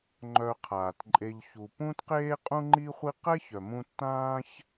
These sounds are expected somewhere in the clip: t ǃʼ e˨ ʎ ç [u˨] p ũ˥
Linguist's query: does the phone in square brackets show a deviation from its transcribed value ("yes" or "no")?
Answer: no